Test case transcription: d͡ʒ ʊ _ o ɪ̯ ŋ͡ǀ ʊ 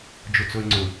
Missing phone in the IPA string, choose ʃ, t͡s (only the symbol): t͡s